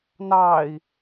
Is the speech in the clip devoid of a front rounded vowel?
yes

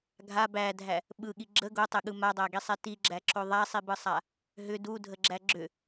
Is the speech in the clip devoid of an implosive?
no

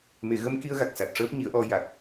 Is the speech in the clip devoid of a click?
yes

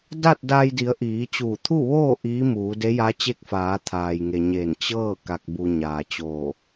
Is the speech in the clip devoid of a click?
yes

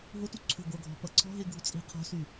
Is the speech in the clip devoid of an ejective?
no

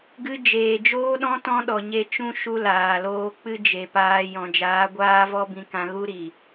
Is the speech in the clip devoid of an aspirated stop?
yes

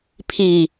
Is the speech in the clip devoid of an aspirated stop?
no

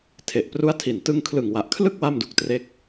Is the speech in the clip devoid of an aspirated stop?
no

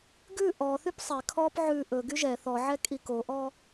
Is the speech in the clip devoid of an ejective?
no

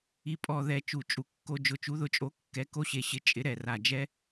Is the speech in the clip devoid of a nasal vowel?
yes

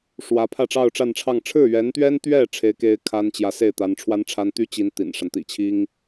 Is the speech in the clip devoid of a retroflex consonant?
no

